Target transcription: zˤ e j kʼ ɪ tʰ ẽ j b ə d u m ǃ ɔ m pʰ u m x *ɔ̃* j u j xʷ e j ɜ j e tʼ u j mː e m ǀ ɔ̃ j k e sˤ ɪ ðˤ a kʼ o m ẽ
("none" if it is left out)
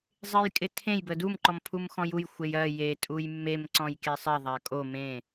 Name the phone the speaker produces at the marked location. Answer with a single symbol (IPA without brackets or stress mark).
ɔ̃